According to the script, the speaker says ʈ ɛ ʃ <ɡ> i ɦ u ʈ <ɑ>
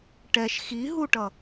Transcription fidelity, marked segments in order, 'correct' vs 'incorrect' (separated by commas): incorrect, incorrect